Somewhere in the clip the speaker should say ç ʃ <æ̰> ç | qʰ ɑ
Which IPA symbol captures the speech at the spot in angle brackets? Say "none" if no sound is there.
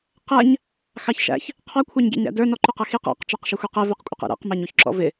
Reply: æ̰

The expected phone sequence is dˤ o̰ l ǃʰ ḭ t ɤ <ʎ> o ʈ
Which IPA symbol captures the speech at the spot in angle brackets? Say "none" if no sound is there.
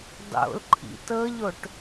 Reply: ʎ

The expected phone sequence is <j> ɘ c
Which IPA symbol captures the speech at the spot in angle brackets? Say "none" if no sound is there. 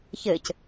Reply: ç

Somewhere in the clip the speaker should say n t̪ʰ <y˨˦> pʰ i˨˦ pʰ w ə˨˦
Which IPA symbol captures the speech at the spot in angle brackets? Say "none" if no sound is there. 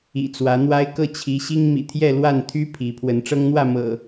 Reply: y˦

